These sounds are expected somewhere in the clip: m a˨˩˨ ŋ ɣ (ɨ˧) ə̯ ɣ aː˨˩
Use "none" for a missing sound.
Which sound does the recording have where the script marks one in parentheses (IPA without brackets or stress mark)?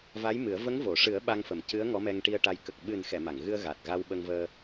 ɨ˧